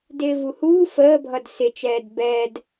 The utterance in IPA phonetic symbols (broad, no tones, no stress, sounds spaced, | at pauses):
d ɪː v u h uː f əː bʱ ʌ d s ɪ t͡ʃ ɛː d b ɛ d